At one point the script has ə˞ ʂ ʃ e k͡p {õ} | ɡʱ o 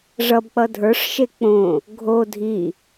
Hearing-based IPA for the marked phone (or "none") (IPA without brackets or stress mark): õ